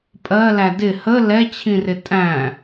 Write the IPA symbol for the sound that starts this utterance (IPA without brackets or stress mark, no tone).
pʼ